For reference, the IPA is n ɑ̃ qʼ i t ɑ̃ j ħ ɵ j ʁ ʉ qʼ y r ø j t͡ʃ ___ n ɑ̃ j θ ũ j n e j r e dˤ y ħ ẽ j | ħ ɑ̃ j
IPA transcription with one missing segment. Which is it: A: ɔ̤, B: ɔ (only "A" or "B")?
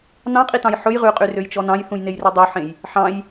B